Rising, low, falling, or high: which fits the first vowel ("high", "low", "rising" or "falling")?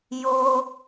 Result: high